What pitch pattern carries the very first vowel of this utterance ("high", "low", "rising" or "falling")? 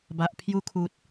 low